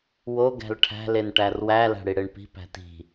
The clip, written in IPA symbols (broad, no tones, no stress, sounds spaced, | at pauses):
w o ɡ æ̤ l ʈʰ æ̤ l e n ʈ æ r w æ l æ̤ ɽ i ɽ e ɳ p i̤ p æ̤ t i̤